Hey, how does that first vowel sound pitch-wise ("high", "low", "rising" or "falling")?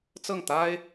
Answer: falling